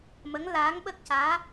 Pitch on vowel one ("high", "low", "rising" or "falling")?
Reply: rising